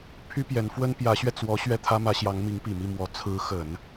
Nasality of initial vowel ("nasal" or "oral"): oral